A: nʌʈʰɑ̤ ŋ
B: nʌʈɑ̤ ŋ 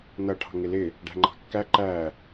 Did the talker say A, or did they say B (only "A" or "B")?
A